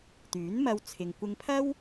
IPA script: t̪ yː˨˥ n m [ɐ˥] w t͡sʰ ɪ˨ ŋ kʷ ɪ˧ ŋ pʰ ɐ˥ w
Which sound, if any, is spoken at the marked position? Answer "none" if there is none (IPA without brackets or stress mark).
ɐ˧